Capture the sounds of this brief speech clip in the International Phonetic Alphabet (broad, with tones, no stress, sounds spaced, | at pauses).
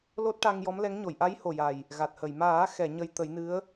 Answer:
l o˦˥ t̚ ʈ a˧ ŋ j ɔ˧˥ m l ɛ˧˥ ŋ ɲ o˨˩˨ j ʔ a˧˥ j h o˨˩ j a˨˩ j | ɣ a˨˩ t̚ h ə˨˩˨ j m aː˨˩˦ x ɛ˨˩˨ ɲ ə˧ j t̪ ə˨˩˦ j n ɨ˧˥ ə̯